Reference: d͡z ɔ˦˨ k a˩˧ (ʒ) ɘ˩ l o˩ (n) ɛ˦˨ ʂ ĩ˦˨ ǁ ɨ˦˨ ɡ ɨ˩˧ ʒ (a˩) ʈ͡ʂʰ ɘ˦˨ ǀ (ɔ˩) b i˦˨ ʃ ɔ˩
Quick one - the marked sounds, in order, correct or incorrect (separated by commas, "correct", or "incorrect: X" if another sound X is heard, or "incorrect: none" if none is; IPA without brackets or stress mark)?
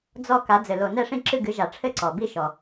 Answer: incorrect: d͡z, correct, correct, correct